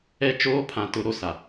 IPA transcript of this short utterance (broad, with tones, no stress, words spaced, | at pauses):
ɛ˦ t͡ʃoː˦pʰã˨˦tʊ˨˦ ɾo˨sa˨